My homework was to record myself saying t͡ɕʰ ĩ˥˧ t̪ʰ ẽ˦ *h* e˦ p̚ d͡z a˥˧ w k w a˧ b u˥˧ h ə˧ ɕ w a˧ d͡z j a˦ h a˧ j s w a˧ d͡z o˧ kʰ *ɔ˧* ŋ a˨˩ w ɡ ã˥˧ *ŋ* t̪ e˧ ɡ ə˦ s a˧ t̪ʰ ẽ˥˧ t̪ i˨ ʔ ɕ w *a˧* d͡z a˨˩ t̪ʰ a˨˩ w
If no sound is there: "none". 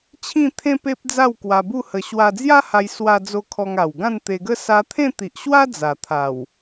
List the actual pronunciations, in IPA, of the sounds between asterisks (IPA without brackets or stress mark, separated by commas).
p, ɔ˧, n, a˦